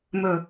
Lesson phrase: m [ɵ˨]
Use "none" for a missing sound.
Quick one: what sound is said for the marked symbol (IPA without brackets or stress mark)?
ɵ˨